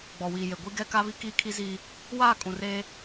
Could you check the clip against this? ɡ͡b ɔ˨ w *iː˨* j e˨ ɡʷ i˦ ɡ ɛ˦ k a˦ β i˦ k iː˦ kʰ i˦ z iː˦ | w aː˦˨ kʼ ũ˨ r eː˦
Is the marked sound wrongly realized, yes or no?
no